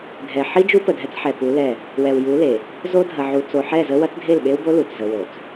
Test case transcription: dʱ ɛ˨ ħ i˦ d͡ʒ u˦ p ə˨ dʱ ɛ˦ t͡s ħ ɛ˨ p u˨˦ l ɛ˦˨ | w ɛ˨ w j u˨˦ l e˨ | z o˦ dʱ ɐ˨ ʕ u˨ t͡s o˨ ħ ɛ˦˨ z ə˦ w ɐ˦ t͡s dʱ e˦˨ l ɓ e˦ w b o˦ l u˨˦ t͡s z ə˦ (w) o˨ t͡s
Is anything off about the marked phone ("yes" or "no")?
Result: no